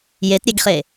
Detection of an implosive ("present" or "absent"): absent